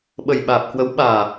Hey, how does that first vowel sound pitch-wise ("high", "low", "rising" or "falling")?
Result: low